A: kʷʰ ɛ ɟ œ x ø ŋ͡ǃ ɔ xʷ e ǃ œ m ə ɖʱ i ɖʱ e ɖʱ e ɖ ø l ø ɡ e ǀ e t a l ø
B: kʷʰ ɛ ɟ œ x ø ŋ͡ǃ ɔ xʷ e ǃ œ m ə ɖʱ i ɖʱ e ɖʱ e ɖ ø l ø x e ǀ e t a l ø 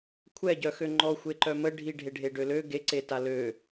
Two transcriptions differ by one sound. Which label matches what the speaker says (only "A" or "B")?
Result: A